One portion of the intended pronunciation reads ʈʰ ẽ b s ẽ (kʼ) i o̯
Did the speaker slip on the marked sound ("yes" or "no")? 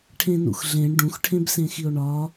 yes